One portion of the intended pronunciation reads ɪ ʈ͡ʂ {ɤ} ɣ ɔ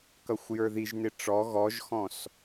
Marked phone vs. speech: incorrect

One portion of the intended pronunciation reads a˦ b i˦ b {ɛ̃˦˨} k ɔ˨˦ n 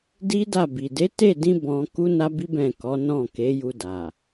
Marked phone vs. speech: correct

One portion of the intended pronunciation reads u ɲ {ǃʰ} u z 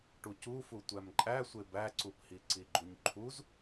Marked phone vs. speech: correct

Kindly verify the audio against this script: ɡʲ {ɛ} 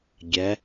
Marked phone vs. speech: correct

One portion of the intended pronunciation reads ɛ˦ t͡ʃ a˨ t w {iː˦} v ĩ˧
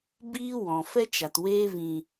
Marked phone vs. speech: incorrect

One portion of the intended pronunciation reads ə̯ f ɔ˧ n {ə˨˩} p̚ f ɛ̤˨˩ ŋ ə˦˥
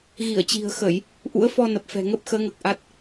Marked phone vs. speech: correct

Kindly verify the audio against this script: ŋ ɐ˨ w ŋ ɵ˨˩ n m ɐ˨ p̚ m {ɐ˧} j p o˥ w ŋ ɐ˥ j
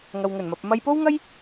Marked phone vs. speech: correct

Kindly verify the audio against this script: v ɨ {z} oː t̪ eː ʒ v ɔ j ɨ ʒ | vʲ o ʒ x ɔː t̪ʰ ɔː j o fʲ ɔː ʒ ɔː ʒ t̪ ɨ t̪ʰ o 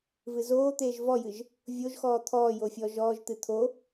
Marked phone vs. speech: correct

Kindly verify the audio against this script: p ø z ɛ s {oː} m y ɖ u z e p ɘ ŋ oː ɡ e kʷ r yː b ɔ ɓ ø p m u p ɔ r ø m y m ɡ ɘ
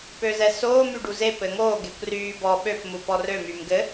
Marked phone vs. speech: correct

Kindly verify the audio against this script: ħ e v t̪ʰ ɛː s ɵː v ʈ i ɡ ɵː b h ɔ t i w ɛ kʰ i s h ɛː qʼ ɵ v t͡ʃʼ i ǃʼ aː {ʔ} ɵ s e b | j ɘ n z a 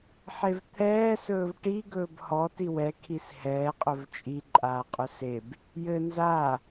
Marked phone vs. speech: incorrect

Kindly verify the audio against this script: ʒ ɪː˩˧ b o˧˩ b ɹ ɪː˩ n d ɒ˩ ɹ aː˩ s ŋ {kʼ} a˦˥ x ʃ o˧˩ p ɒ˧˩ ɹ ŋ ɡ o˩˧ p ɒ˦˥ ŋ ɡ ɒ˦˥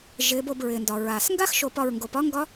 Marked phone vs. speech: incorrect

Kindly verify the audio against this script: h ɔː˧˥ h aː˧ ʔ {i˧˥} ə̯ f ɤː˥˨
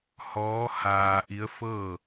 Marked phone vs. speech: correct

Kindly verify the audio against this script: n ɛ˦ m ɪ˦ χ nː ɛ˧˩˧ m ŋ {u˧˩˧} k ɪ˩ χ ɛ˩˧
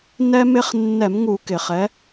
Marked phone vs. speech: correct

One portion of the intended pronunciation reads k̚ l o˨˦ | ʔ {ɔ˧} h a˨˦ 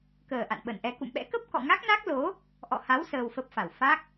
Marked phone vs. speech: incorrect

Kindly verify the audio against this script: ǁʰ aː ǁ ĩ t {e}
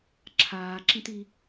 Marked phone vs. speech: incorrect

